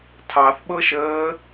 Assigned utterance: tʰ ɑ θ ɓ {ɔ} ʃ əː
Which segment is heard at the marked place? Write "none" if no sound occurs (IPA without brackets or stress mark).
ɤ